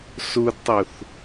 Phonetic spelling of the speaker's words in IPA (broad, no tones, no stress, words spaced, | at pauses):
sudtˤuθ